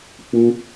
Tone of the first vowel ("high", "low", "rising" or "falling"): high